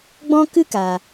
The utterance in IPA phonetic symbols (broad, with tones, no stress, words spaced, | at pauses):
ɡ͡bɔ̃˦ kɨ˦kaː˨